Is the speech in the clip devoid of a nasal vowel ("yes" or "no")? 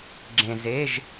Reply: no